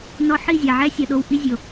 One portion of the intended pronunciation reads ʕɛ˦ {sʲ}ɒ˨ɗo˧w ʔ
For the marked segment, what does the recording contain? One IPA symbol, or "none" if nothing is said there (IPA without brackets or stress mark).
sʲ